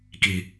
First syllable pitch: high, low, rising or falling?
low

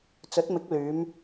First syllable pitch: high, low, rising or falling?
rising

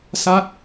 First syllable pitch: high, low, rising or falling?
falling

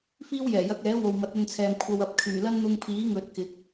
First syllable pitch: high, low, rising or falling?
high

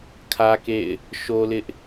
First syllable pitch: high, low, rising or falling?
high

